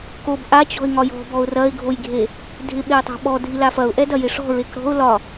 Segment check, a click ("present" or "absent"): absent